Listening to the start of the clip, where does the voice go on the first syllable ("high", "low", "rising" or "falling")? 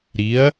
rising